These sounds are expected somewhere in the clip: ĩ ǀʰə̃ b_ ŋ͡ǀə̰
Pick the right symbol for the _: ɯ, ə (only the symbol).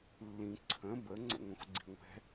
ə